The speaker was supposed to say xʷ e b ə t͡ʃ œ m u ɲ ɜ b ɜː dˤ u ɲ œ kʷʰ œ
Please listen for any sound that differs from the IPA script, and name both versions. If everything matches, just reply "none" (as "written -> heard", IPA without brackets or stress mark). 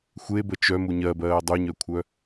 none